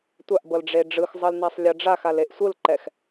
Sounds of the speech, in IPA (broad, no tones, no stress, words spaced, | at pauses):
tʷaʔbɤlɖ͡ʐe ɖ͡ʐɯxzˤɤlnasˤlʲɤ ɖ͡ʐaxaleʔ sʷɯlǃɛx